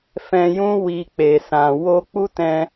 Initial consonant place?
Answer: labial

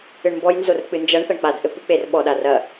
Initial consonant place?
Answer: retroflex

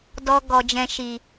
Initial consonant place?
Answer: alveolar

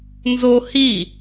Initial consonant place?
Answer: alveolar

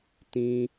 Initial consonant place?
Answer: alveolar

